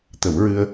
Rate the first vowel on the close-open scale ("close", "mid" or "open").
mid